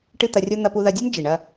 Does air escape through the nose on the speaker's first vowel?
no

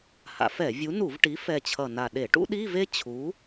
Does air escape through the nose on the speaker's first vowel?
no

